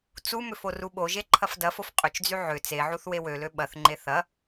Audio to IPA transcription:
t͡sumʏf oruɓoʒe ǃʰɐfdɐfof qʼʏt͡ʃd͡zy ʕʏ t͡seʕuθ wewølø ɓɐθŋ͡ǃe θɐ

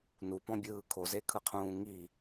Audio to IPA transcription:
nupɔ̃bʲɯː kʰozekʰɯqʰũː ŋi

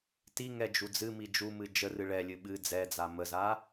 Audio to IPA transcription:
tiŋɛ d͡ʒud͡zɨmi d͡ʒumɨ d͡ʒərɨ ɭɛlʲɨ ɓɨ d͡zɛd͡za məza

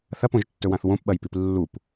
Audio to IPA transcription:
θɐpõʒtːɵwãθ wõpɓɐjpip lːup

